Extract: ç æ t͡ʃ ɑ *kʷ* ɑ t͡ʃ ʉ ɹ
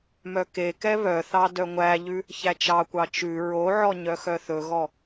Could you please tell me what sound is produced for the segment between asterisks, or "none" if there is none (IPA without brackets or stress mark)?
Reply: kʷ